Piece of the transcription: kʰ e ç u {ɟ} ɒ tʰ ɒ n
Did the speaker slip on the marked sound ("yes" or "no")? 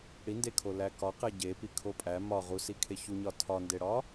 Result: yes